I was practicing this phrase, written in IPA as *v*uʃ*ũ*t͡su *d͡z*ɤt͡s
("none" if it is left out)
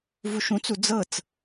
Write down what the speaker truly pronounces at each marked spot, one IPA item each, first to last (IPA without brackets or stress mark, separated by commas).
v, ũ, d͡z